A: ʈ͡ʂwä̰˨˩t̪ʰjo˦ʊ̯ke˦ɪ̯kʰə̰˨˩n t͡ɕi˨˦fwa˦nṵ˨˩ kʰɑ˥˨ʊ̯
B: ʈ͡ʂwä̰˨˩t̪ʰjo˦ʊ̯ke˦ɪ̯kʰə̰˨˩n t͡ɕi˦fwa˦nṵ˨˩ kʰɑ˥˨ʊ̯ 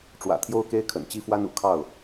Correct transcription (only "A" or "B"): B